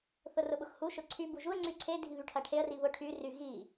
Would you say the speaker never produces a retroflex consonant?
no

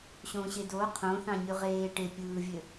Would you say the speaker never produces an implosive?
yes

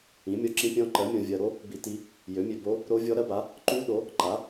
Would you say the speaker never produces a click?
no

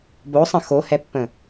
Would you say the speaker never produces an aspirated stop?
yes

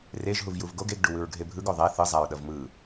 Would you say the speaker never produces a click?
yes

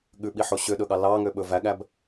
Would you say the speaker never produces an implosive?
no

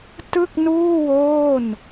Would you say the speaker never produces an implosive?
yes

